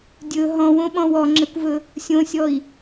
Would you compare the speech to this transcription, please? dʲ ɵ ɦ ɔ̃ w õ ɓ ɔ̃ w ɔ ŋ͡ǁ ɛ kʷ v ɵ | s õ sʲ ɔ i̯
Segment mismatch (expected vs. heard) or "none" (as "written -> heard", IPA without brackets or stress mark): s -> sʲ